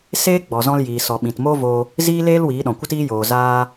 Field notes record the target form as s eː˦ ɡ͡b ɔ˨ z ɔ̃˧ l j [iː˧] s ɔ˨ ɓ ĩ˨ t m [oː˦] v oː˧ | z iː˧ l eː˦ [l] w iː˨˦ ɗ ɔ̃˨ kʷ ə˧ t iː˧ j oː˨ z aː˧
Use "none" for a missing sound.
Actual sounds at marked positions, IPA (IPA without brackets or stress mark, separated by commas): iː˨, oː˦, l